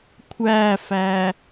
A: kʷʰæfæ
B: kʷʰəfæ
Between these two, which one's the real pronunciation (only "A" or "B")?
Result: A